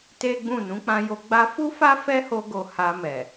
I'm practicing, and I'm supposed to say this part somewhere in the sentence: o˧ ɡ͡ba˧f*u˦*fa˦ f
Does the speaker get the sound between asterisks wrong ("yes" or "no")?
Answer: no